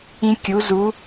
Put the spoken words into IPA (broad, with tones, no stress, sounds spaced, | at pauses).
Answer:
ĩ˧ kʲ u˩˧ z u˩˧